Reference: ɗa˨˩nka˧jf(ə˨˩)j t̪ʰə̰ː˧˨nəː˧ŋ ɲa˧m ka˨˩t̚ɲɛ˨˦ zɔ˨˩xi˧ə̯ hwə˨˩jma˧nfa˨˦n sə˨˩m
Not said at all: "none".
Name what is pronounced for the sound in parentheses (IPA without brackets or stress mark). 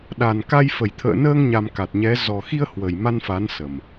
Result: ə˨˩